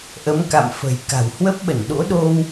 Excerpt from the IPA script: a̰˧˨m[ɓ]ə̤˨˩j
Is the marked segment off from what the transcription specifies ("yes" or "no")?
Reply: yes